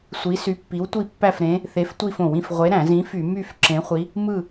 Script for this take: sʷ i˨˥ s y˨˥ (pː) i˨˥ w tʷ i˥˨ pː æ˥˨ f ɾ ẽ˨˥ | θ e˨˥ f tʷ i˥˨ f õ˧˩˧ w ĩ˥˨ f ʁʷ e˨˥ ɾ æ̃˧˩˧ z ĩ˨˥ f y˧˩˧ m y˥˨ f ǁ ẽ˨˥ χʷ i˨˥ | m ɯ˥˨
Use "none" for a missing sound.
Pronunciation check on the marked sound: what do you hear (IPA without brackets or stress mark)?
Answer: pː